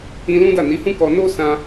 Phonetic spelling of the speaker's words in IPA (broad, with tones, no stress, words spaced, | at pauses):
ĩ˧ lũ˦da˦˨ ni˨˦hũ˦kɔ˧ no˦sã˧